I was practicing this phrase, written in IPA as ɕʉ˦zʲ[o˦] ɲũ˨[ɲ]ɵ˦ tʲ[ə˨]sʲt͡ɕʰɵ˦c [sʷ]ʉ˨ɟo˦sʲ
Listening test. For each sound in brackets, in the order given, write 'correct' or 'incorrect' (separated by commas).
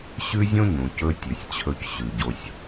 incorrect, incorrect, incorrect, incorrect